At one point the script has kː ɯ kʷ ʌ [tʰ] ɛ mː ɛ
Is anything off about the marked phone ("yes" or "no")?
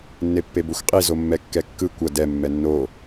yes